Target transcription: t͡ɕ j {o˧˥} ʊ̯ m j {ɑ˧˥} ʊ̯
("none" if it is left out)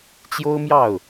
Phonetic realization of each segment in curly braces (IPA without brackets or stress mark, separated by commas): o˥, ɑ˥˩